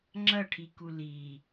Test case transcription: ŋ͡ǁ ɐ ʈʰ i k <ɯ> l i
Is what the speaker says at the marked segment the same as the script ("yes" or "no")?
no